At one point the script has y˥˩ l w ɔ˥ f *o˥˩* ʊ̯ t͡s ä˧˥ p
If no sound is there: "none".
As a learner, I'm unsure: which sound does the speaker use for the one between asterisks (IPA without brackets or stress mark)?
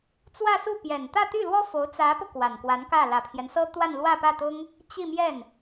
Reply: o˧˥